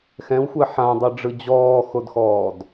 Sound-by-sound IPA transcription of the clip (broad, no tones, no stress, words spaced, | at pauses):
xɛ̃wxʷɛ ħãdˤɤɖ͡ʐɯ d͡ʑɔːxodxɔːd